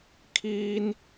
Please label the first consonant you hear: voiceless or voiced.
voiceless